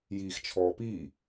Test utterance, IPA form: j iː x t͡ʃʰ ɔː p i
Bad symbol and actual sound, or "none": none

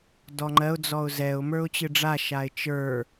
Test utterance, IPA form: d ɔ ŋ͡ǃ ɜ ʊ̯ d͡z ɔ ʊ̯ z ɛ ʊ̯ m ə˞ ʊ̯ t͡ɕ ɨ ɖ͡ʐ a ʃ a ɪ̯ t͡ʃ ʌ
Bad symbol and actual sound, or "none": ʌ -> ə˞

